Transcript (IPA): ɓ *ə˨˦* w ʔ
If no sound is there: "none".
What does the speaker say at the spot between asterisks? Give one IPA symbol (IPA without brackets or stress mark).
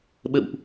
ə̰˧˨